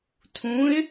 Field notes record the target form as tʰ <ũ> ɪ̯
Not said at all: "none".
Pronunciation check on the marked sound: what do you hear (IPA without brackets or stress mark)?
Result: ũ